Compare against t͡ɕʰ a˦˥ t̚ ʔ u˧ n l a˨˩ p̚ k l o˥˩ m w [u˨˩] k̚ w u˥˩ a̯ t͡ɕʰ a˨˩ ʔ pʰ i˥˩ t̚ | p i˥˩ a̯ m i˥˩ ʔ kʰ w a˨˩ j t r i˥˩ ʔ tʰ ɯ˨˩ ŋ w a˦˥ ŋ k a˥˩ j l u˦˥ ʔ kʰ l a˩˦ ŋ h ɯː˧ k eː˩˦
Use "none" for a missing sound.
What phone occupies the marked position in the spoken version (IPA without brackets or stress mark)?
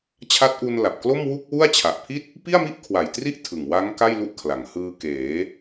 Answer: u˥˩